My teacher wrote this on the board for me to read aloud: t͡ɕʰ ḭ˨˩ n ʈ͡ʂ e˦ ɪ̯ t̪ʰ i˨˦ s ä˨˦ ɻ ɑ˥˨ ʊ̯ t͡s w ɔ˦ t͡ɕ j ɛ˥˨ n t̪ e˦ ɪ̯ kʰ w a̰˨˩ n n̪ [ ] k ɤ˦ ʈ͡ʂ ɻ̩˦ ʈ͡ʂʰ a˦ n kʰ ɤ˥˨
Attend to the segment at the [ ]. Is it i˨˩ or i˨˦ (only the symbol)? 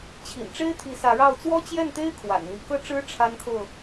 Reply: i˨˦